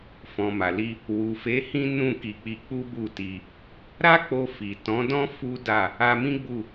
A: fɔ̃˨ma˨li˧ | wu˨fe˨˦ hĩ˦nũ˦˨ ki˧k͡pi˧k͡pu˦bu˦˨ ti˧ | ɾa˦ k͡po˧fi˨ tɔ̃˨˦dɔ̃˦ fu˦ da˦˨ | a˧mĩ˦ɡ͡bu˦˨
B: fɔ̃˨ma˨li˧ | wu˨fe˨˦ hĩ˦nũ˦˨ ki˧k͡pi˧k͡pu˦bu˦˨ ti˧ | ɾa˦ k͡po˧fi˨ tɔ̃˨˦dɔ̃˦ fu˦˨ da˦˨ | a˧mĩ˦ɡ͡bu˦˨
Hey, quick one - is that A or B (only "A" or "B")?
A